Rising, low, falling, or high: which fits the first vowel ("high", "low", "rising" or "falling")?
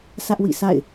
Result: high